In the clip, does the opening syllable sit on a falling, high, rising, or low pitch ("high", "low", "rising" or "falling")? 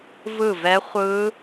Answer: falling